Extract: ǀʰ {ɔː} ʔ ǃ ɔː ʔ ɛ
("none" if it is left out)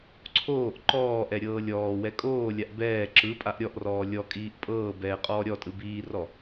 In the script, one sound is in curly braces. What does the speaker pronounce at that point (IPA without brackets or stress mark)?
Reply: oː